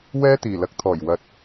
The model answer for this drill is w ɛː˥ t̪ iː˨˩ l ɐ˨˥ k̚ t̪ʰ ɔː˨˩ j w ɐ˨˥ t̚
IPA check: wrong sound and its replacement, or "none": none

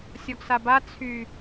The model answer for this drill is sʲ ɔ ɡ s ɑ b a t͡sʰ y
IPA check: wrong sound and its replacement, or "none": ɑ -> a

